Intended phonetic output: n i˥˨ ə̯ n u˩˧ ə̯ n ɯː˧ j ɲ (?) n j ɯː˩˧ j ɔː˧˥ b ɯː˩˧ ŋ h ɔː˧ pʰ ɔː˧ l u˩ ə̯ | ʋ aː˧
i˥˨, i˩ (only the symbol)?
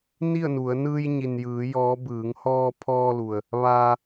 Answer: i˩